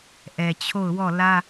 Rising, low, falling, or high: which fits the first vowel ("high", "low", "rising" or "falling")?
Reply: low